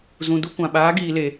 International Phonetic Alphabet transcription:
z ũ˨ d u˧ kʷ ã˨ ɓ aː˨˦ ɡ iː˧ l e˧

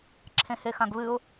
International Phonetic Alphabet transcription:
ǁʰ ẽ h e x ã ɡ β ɨ ʊ̯

